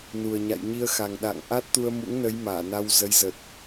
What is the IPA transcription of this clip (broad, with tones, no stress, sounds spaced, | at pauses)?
n u˨˩ ə̯ ɲ a̰˧˨ j ɲ i˧ ə̯ x a˨˩ ŋ ɗ a̰˧˨ ŋ ʔ a˦˥ t̚ t̪ u˧ ə̯ m ṵ˧˥ ŋ n ə˨˦ j m aː˧˩ n a˧ w z ə˨˦ j z ə˨˩ t̚